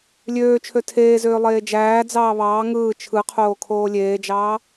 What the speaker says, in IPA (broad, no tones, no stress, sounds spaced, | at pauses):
lʲ øː t͡ʃʰ ø tʰ eː z øː lˠ eː d͡ʒ æː d͡z ɑː β ɑː ŋ ɯː t͡ʃʰ ɯ qʰ oː kʰ oː lʲ eː d͡ʒ ɑː